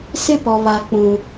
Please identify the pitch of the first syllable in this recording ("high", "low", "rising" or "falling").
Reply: high